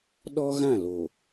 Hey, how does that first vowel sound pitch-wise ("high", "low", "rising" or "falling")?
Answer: high